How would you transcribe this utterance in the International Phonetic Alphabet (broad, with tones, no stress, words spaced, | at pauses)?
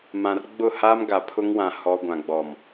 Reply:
mã˨rɡ͡bʊ˦˨ha˦mɡa˨ pʰʊ˦ŋwã˨ hɔ˦ ɡʷã˨ɡ͡bɔ˨m